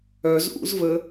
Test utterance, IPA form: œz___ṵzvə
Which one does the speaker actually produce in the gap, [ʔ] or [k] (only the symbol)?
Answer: ʔ